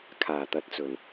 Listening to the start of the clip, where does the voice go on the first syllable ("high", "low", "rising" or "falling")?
low